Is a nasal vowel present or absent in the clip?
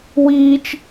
absent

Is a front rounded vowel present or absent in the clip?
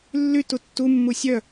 present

